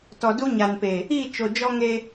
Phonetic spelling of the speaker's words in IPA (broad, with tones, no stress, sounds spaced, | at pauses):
t ɔ˨ d u˦ ɲ a˨ n p e˨ | i˦˨ t͡ʃ o˨ d͡ʒ ɔ˦ ŋ e˦